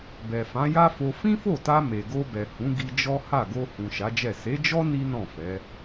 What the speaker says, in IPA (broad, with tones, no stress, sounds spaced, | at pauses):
b ɛ˨ f ã˨˦ j a˦ f o˧ f ĩ˦ f o˦˨ t a˧ m e˨ ɡ o˧ b ɛ˨ h ũ˨˦ ɡ i˧ d͡ʒ ɔ˦ h a˦˨ ɡ o˧ h ũ˨ ʃ a˨˦ d͡ʒ ɛ˦˨ s e˨˦ d͡ʒ ɔ˦ n i˦ n ɔ̃˦˨ f ɛ˨˦